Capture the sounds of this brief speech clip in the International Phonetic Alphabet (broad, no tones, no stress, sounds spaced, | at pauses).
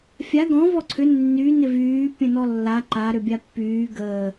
fʲ a ɡ ɔ̃ v ɔ ǀʰ ʏ nː y n ɪ v yː pʲ ə̃ n ɔ lː a ǃ a ɾ ʏ bʲ a pː yː ɡ əː